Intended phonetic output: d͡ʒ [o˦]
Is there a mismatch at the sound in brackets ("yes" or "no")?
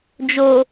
yes